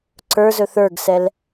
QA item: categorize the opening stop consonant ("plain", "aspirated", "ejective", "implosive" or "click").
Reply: click